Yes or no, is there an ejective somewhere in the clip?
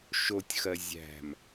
no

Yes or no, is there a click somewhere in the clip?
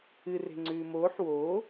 yes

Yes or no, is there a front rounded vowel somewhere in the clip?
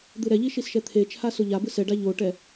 no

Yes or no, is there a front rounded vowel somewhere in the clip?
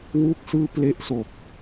no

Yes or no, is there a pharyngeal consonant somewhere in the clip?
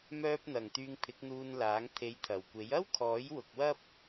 no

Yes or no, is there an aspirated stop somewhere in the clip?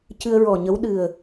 no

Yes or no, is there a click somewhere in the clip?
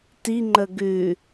yes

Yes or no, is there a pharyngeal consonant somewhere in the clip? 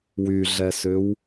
no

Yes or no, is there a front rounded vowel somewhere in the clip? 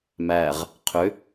yes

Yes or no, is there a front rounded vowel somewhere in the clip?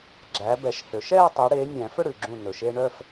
yes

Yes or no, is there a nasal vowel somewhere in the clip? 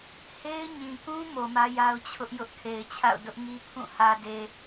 yes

